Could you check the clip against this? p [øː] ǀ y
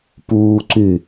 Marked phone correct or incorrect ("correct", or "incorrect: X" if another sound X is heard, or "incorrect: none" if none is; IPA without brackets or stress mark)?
incorrect: uː